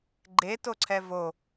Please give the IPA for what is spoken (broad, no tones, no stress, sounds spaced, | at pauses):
ɡ͡ǃ e t o ǀʰ ɛ v o